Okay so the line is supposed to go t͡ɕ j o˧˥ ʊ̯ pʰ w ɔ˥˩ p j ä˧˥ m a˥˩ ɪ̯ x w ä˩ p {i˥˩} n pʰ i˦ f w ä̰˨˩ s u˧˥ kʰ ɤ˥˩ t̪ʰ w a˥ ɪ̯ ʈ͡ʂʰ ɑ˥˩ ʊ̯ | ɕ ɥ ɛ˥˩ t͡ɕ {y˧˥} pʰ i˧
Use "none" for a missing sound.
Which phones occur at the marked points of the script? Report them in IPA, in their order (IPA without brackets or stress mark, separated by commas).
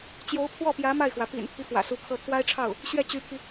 ḭ˨˩, y˧˥